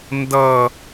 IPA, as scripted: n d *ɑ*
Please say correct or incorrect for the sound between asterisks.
incorrect